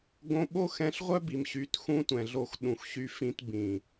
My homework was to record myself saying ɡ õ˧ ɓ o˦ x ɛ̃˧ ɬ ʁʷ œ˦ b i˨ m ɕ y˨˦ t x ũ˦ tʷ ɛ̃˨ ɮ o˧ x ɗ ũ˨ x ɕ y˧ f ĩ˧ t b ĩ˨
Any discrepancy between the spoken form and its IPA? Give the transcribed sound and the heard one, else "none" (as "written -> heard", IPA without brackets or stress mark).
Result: none